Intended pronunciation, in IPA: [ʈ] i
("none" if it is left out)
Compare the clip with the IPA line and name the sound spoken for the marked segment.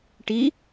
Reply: ʈ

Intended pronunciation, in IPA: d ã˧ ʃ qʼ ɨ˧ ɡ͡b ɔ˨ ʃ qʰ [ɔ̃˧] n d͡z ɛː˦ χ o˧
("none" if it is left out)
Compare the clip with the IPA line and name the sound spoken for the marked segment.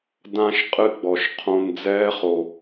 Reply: õ˧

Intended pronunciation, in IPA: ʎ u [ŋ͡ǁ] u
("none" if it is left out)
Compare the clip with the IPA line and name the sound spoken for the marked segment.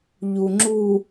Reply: ŋ͡ǁ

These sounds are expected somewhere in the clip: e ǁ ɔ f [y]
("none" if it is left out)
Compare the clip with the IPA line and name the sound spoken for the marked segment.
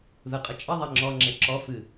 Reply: ɨ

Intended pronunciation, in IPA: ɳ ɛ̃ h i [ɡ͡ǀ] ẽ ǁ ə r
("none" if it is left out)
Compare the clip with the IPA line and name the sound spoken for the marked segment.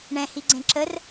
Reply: ɡ͡ǀ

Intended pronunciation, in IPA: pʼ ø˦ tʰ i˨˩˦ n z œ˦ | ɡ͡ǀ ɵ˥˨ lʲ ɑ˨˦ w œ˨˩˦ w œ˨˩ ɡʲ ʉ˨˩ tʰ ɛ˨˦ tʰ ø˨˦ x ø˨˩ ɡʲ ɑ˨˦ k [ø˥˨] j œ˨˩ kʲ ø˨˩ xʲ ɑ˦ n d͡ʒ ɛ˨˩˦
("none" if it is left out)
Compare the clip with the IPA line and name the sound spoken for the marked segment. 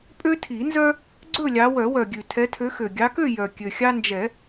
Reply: ø˥˨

